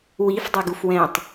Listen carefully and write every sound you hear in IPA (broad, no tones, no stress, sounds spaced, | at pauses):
w i f dˤ u ɡ u f w ɛ̃ tˤ